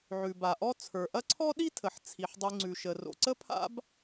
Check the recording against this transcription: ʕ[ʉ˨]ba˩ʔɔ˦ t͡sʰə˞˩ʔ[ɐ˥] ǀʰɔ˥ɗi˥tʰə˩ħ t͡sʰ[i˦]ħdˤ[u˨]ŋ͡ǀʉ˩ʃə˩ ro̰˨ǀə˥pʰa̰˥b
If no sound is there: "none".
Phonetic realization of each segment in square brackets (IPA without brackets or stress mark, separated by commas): ʉ˩, ɐ˥, i˩, ʉ˨